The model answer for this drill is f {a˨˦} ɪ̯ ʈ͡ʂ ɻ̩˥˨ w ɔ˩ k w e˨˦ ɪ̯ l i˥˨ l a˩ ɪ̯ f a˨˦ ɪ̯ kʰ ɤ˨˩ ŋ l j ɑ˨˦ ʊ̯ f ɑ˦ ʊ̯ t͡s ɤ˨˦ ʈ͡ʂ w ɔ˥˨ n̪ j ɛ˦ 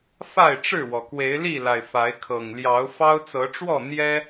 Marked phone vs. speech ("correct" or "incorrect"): incorrect